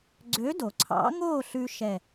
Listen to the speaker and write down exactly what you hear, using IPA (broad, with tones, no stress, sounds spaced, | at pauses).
ɡ͡ǀ ø˧˥ d o˨ ǀʰ ɑ̰˧˥ ŋ oː˥˧ ɬ ʉ˥ ʃ ɛ˥˧